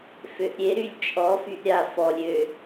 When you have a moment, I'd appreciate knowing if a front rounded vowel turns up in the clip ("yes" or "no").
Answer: yes